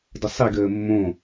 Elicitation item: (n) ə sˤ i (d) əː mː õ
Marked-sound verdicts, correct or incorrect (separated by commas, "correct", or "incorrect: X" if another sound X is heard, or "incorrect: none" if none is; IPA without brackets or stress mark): incorrect: d, incorrect: ɡ